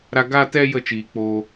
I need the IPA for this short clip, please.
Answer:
ɾa˧ ɡa˧tɛ˧ jə˦˨t͡ʃiː˨k͡poː˧

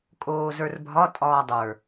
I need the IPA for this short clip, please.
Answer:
kʼoːzə˞rbʱɒ tʼɒːdˤə˞

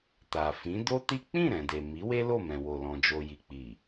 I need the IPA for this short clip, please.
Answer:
ta˨ fĩ˨˦do˦ti˦ k͡pĩ˦˨ɾɛ̃˨ de˨ mi˨˦we˦ lo˦˨mɛ̃˨wo˨lɔ̃˨ d͡ʒo˨ji˨k͡pi˨

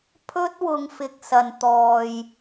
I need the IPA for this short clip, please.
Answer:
pʰɵ˥t̚wʊ˨˧ŋfɪ˨k̚ sɐ˨nt̪ɔː˨j

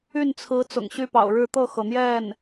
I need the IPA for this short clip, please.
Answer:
y˥˩nt͡sʰɹ̩˧˥ t͡sʊ̰˨˩ŋɕy˥˩pɑ̰˨˩ʊ̯ɻɻ̩˥˧ t̪ɤ˥˩xɤ˩n̪jɛ˥˩n

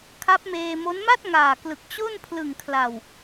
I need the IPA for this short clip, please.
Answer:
kʰa˦˥p̚meː˧mo˦˥n ma˥˩t̚ŋaː˨˩klɯ˨˩k̚ t͡ɕo˥˩n pʰlɯ˨˩ŋkʰla˨˩w

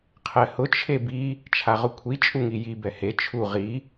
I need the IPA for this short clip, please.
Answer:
qʰɛhʊ t͡ʃʰebi | t͡ʃʰaʁʊkʷʰi t͡ʃʼuŋiji bɛhe t͡ʃʰu ʁi

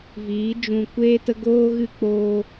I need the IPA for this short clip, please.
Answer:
viː˨˦d͡ʒũ˧kʷeː˦tə˦ ɡoː˦ɣɨ˦k͡poː˦

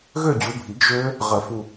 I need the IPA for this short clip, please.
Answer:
ɣø˥˧d͡ʑu˨˦bʱi˨˩˦ɡ ʒø˦˥ | ʁə˨˩˦ fu˨˩

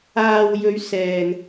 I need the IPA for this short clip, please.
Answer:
aː˨wjɵ˨˧ɥ sɛː˨n

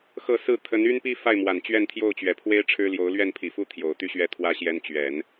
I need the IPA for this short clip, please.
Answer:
xɤ˥˧ sɹ̩˥˩ t̪ʰə˧˥ny˥npi˥ fa˥˩ɪ̯mwa˨˩n t͡ɕɥɛ˥˧nt̪ʰjo˥˩ʊ̯t͡ɕɥɛ˨˩pʰwe˥ɪ̯ ʈ͡ʂʰɻ̩˥ljo˧˥ʊ̯ lɥɛ˥˩npʰi˨˩fu˥˩ t̪ʰjo˨˩ʊ̯t̪y˥ɕɥɛ˥˩t̪ʰwä˥ ɕjɛ˥n t͡ɕɥɛ˨˩˦n

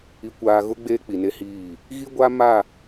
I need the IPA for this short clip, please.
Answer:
i˨kʷaː˨ɣʊ˦ ɡ͡beː˦k͡pi˨ne˦hiː˦˨ | ɣi˦ɡʷa˦ ma˦˨

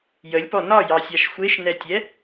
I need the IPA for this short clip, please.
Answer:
jəlʲpɔ nɒjɑsʲaʃ xʷeʃnɛtʲɛ

